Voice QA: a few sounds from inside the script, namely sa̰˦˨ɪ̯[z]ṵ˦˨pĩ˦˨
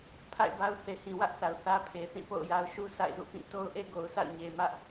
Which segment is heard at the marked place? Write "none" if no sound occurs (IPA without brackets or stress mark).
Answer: z